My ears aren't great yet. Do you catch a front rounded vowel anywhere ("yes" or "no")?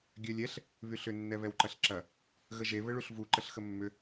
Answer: yes